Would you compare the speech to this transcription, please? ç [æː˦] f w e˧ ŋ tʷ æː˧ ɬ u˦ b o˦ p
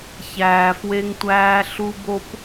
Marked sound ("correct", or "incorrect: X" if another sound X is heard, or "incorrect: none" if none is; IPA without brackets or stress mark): incorrect: æː˨